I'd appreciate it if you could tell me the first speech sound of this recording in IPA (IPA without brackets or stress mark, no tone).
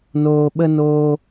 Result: n